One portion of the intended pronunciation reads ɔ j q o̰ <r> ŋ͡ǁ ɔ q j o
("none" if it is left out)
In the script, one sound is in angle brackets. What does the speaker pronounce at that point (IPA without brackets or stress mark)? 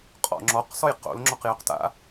l